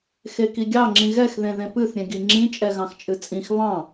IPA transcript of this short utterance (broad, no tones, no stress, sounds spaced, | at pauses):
x e k i ɡʲ ɑ ŋ͡ǁ ĩ ɣ ɛ x ð ẽ ð ẽ p ɨ θ ɾʲ ẽ ɡ i ŋ͡ǁ ĩ t͡ʃʼ ɛ ɣ ɑ̃ x t͡ʃʼ ɨ t͡sʼ ĩ x β ɑ̃